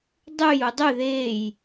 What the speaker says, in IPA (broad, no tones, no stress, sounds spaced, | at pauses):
dˤ ʉ j u dˤ ʉ ð e j